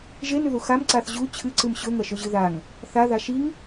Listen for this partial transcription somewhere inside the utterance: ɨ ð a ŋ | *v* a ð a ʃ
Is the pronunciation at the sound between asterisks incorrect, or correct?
incorrect